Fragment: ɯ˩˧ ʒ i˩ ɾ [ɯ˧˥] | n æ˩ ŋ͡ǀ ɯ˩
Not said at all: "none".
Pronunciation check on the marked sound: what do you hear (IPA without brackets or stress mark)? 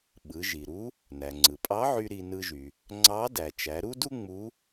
u˧˥